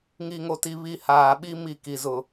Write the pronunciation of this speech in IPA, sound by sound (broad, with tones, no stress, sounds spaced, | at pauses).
ŋ i˨ ŋ o˨ t i˨ β i˨ h aː˨ ɓ i˦ m i˦˨ k i˨ z ʊ˨